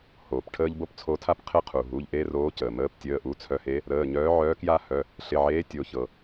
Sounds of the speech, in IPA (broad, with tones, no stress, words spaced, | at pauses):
hoː˩pʈʰəː˥ʎ bo˥pt͡sʰo˧˥tʰa˥p qʰɪ˥qʰu˩ ɦu˩˧˩ʎʔe˥roː˧˥ cəː˩ məː˧˥ptʲəː˩˧˩ʔu˧˥ t͡sʰœ˧˥he˧˥ | ɾəː˩˧˩ɲœː˧˥ʕœː˧˥ kja˥ hœ˩˧˩ | ɬɪ˩˧˩ʕeː˧˥ tʲo˩˧˩çɤ˩